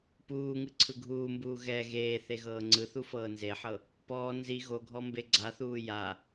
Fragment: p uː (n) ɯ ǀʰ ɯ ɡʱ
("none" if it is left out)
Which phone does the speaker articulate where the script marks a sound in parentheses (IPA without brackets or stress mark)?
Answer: ŋ